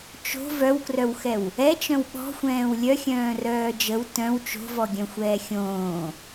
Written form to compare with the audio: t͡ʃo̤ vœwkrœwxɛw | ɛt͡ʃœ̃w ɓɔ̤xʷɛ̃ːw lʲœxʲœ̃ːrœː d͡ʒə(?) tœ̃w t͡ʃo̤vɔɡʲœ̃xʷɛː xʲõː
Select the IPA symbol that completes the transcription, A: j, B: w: B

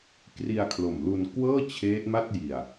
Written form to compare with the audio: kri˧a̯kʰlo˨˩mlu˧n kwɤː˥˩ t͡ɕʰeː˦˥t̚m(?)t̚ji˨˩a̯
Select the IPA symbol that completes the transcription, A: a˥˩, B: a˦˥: A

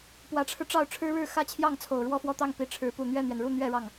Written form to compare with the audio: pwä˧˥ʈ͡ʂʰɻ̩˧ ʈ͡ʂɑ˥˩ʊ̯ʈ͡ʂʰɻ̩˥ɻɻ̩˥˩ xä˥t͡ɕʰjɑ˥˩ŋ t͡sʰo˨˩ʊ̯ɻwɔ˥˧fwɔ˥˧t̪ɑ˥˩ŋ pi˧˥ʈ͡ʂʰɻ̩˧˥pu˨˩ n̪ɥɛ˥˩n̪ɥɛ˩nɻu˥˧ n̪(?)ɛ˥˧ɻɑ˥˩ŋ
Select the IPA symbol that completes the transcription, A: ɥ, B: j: A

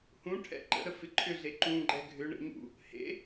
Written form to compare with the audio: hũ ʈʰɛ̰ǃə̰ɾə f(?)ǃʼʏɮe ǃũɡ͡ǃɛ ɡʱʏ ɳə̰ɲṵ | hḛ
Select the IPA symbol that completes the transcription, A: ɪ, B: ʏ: A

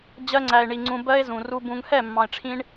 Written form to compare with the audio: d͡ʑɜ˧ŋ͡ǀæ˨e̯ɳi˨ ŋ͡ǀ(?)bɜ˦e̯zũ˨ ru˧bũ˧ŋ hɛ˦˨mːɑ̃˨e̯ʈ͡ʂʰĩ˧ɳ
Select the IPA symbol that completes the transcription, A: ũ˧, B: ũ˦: A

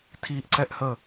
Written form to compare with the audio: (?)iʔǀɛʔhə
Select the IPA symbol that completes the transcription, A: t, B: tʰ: B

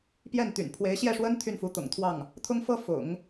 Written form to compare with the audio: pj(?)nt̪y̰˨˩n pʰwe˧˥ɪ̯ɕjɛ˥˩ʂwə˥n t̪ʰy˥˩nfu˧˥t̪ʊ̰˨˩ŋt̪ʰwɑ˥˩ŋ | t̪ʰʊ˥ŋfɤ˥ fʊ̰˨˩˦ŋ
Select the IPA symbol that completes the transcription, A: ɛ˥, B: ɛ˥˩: B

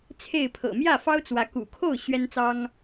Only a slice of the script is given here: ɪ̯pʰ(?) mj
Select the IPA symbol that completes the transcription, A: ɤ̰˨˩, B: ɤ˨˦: A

